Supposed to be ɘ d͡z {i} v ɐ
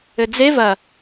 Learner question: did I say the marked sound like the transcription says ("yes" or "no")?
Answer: no